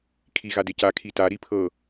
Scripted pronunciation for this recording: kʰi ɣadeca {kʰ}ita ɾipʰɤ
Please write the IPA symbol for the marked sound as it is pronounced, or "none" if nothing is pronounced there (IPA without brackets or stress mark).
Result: kʰ